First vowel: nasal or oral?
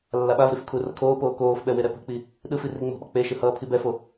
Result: oral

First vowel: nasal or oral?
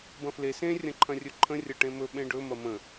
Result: nasal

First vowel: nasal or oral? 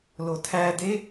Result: oral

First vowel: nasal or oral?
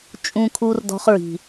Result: nasal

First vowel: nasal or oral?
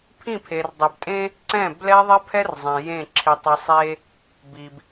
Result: nasal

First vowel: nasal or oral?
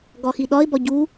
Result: oral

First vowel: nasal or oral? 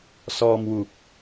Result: oral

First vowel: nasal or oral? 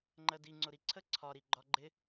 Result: oral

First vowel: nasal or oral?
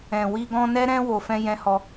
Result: nasal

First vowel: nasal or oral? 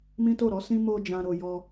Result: nasal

